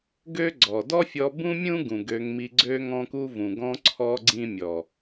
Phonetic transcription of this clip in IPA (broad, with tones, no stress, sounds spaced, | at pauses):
ɡ ø˦ ɡ͡ǀ ɔ˨ d ɔ˦ fʲ ɔ˧ b ũ˦ mʲ ũ˦ ɡ ũ˨ ɡ ø˧ ŋ m i˧ ɡ͡ǀ ø˦ ŋ ɔ̃˧ k u˧ v ũ˨ ɡ ɔ̃˧ ǀʰ ɔ˧ ɡ͡ǀ ĩ˧ mʲ ɔ˨